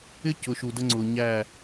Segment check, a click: present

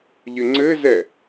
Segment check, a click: present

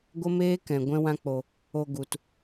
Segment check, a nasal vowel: present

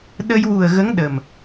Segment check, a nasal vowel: absent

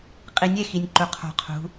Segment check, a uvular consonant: present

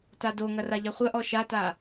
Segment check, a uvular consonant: present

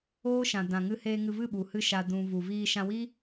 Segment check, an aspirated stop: absent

